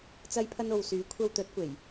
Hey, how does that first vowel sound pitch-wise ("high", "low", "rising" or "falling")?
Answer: high